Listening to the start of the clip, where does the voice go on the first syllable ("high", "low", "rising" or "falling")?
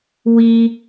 high